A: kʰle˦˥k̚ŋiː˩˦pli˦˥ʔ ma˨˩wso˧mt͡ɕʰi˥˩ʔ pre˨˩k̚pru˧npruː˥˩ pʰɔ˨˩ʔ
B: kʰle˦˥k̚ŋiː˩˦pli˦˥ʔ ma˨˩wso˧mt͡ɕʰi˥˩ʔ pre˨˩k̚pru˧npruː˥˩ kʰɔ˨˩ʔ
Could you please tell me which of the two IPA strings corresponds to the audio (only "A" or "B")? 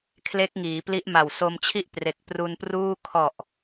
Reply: B